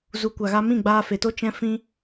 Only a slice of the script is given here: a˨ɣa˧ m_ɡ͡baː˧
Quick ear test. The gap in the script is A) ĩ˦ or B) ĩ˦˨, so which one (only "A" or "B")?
B